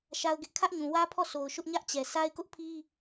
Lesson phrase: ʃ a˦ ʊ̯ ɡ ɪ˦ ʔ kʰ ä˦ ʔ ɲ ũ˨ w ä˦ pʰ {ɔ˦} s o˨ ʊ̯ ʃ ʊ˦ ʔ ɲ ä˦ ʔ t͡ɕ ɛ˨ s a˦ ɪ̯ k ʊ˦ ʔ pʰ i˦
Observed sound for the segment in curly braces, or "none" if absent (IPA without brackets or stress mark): ɔ˦˨